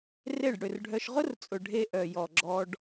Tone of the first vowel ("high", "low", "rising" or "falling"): falling